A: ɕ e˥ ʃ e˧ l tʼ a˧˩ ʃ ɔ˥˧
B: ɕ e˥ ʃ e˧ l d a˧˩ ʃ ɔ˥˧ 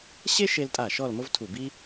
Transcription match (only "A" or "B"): A